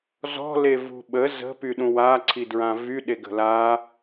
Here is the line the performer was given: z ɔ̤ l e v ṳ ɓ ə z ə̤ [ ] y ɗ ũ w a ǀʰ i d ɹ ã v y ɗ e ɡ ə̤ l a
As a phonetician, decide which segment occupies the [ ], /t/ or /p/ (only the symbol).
p